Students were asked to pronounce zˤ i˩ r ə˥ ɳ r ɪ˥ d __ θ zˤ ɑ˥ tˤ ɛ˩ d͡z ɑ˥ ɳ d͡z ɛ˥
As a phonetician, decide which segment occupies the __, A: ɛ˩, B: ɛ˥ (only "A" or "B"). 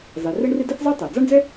B